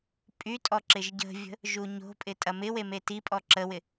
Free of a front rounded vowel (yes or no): no